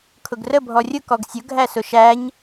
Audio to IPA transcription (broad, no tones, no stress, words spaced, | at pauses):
kʰʊɡrə bʱɔrʲʊ kɔɡsʲʊ ɡʱæsʊʃæɲ